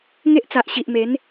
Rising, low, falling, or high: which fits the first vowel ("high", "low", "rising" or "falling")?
high